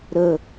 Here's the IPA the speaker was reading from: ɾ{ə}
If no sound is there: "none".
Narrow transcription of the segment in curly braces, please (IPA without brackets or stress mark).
ə